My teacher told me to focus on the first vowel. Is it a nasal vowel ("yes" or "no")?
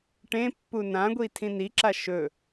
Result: yes